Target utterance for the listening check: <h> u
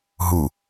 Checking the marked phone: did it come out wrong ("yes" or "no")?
yes